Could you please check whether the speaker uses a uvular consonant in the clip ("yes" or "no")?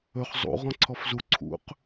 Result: yes